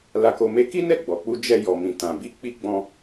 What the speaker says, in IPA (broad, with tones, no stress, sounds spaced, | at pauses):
l a˧ k o˧ m e˦ k i˦ n ɛ˦˨ ɡ͡b ɔ˨ k͡p u˧ d͡ʒ ɛ˧ j ɔ˨ m ĩ˨ t ã˨ b i˧ k͡p i˧ ɡ͡b ɔ̃˧